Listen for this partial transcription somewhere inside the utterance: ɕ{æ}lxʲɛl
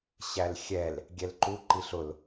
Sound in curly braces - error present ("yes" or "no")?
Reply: no